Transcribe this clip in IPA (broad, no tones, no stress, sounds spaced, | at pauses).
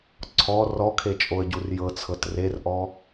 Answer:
ǀʰ ɔ r ɔ kʰ e t͡ʃʼ o ə̯ ɟ u r j ɤ t͡sʰ ɤ t r e r ʔ ɔ